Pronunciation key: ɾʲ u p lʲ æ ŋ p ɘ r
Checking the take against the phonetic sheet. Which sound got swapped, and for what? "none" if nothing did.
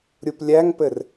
none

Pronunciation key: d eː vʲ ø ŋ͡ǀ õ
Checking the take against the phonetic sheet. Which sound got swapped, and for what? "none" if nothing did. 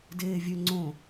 none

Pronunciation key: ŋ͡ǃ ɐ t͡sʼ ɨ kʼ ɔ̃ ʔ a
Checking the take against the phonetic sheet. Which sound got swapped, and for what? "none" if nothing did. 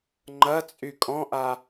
ɨ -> y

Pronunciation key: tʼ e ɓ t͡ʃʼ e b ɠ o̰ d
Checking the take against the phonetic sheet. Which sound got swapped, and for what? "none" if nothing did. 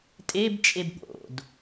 ɓ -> b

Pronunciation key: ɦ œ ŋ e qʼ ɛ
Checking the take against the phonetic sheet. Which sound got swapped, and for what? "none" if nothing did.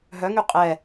e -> y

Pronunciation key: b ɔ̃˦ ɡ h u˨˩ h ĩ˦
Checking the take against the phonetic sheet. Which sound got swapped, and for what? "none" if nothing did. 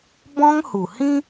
ɡ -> ŋ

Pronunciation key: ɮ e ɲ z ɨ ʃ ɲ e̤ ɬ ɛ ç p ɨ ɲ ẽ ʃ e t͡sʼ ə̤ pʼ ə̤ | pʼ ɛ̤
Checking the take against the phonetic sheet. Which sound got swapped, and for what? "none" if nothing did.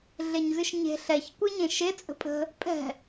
p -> kʷ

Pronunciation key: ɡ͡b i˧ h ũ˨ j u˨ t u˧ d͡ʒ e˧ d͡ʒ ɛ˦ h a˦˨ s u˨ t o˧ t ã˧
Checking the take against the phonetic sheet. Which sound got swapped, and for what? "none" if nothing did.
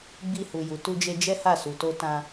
ũ˨ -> u˨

